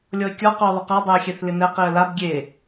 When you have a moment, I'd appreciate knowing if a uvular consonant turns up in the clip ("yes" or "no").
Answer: yes